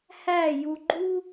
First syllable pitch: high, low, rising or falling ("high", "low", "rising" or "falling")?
falling